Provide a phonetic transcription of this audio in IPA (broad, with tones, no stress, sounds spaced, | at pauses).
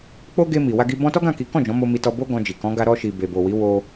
k͡p o˦ ɡ e˧ m i˨ w a˧ ɡ i˧ b ɔ̃˧ t ɔ˦ ɡ ã˦˨ k i˨˦ k ɔ̃˦˨ d͡ʒ ɔ̃˨˦ m o˧ m i˧ t ɔ˧ b o˦ ɡ ɔ̃˧ d͡ʒ i˨ k ɔ̃˨˦ ɡ a˧ ɾ ɔ˧ ʃ i˨ b e˨ b o˨ w i˨˦ w o˧